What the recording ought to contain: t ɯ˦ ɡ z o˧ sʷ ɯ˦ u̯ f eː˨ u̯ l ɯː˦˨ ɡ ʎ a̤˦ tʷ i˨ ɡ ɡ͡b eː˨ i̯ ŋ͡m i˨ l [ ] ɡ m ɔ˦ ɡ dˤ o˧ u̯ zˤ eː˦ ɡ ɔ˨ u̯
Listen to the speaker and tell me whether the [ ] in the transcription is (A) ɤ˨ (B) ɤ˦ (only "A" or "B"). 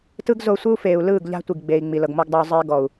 A